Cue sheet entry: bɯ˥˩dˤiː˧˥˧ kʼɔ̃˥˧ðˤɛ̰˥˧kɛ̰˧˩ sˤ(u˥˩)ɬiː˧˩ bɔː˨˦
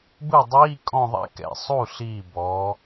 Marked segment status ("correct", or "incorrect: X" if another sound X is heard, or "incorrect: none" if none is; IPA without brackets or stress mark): correct